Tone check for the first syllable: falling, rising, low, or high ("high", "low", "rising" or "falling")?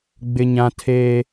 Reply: high